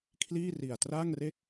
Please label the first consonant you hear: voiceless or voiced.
voiceless